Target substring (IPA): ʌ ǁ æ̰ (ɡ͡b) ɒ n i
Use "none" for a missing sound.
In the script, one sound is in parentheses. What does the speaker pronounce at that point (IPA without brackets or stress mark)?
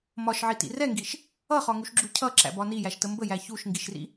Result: b